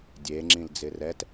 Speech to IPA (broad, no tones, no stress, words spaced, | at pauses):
dʲeŋ͡ǁĩl d͡zɪrɛt